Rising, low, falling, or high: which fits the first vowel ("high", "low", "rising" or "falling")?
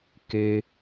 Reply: low